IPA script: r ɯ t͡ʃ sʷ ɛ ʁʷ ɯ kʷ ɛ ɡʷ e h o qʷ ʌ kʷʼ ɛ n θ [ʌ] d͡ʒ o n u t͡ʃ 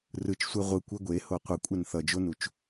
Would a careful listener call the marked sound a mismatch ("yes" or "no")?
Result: no